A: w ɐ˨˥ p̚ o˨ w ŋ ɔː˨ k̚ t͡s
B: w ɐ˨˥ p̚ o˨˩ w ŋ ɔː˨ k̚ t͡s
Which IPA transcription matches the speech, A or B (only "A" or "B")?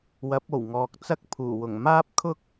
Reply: B